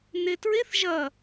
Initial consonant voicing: voiced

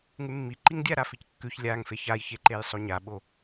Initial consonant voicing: voiced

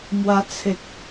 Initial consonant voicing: voiced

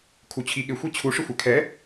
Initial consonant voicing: voiceless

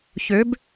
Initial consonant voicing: voiceless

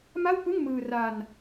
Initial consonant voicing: voiced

